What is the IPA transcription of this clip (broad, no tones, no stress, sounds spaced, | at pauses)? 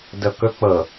d ɤ k ɵ k͡p ɤ